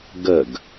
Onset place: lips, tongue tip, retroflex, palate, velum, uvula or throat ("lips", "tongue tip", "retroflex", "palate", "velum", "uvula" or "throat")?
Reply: velum